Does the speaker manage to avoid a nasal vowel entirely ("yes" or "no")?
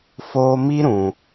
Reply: no